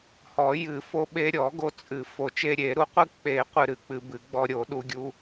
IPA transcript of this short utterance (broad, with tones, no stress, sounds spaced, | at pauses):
h ɔ˨˩˦ j ɨ˨˩˦ f o˧ ɓ e˧ ɾʲ ɔ˨˩˦ ɡ o˧ t͡sʼ ɨ˨˩˦ f o˨˩˦ t͡ʃ e˧ ɾʲ e˨˩˦ ɾ u˨˩˦ qʷ ɨ˧ k͡p e˨˩˦ qʷ ɨ˧ ɾ ɨ˨˩˦ k͡p ɨ˧ b ɨ˨˩˦ ɡ͡b ɔ˧ ɾʲ o˨˩˦ ɗ u˧ ɡʲ u˧